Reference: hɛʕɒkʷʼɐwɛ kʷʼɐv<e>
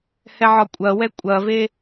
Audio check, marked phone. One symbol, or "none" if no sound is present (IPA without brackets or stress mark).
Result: e